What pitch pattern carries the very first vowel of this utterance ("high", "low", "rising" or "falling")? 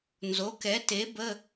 rising